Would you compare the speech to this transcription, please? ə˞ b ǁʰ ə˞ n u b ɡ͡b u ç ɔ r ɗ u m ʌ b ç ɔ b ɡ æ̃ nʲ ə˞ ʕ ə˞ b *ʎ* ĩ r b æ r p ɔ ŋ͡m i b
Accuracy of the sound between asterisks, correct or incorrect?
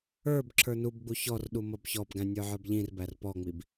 correct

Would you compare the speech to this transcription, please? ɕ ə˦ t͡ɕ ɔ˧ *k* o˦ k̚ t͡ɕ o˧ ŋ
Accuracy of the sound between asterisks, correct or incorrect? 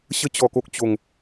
correct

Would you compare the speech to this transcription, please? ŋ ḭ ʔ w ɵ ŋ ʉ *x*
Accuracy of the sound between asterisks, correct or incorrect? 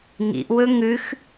correct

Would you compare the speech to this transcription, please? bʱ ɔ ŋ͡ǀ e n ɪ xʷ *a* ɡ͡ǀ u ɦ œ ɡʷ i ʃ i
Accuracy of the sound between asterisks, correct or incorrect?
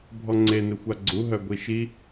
correct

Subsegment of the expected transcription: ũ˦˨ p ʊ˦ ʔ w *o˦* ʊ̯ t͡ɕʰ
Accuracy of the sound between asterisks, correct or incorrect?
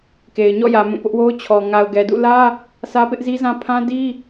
correct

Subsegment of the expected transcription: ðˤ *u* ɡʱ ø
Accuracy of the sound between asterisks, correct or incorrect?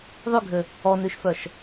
incorrect: y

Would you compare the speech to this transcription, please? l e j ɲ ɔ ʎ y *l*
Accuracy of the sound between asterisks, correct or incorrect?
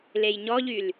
correct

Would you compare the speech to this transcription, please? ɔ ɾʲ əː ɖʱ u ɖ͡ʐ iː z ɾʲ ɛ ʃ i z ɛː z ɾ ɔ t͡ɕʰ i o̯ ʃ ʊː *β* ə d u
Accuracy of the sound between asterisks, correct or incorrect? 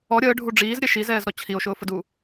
incorrect: f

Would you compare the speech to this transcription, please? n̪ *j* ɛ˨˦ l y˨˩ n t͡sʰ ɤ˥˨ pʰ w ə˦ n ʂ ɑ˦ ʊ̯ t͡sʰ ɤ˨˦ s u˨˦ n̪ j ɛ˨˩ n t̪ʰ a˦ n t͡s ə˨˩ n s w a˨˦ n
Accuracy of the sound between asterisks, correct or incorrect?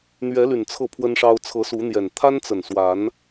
incorrect: ɥ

